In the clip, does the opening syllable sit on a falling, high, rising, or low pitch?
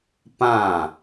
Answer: falling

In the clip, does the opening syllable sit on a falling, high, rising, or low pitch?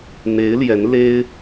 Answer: rising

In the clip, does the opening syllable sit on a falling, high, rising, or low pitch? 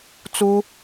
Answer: high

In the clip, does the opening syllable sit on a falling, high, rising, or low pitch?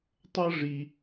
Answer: high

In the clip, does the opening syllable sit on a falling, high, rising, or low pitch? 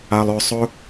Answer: low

